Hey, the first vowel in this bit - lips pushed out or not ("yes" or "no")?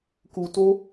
yes